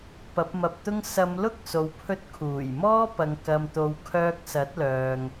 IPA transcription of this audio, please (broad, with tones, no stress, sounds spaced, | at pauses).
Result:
p ɐ˨˥ p̚ m ɐ˧ p̚ t̪ ʊ˥ ŋ s ɐ˨˧ m l ʊ˥ k̚ s o˨ w pʰ ɵ˧ t̚ kʰ uː˨˩ j m ɔː˥ p ɐ˨˧ ŋ k ɐ˧ m t̪ o˧ w kʰ œː˧ k̚ s ɐ˨˥ t̚ l œː˨ ŋ